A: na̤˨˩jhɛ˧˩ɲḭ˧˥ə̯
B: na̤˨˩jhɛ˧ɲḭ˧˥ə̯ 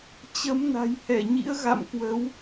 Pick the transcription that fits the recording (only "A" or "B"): A